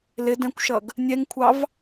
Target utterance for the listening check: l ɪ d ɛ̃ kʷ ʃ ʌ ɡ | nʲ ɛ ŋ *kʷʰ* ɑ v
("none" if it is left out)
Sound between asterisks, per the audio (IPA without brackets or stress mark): kʷʰ